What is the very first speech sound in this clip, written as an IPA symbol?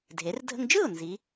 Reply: dʱ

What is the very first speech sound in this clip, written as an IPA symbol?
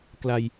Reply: k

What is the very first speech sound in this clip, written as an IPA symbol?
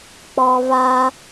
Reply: k͡p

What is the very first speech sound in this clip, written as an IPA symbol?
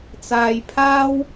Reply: t͡s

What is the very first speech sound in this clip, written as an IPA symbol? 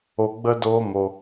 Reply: o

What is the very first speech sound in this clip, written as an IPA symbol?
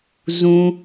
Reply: z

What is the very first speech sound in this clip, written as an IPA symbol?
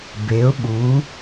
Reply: b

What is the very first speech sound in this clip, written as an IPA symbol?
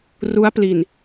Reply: r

